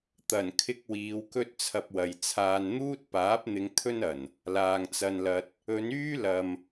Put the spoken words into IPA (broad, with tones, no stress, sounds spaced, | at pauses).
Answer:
t̪ ɐ˨˩ n kʰ ɪ˧ k̚ w iː˨˧ w k ɵ˥ t̚ t͡sʰ ɐ˧ p̚ w ɐ˨ j t͡sʰ aː˨ n n̪ uː˥ t̚ p aː˨˥ p̚ n̪ ɪ˨˧ ŋ t̪ʰ ɵ˥ n ɐ˨˩ n | l aː˨ ŋ t͡s ɐ˧ n l ɐ˧ t̚ | ɵ˨˧ n yː˥ l ɐ˨ m